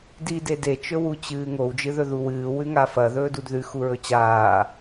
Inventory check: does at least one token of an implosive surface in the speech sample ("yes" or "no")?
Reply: no